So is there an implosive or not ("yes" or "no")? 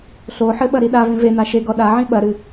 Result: yes